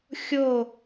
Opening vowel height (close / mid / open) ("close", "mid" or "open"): mid